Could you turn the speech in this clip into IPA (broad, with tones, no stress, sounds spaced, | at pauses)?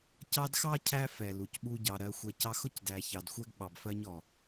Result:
c ɑ˦ d x ɑ˥ cʰ æ˦ f ɛ˩ l u˩ c ɓ u˦ ɟ ɑ˨ ɾ ɜ˨ xʷ ɛ˨ c ɑ˦ x ʊ˥ c d æ˨ ç ɑ˨ d xʷ ɛ˥ ɡ ɓ ɑ˨ b f ɜ˦ ɲ ɔ˩